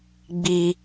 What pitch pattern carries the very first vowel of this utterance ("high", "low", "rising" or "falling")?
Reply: high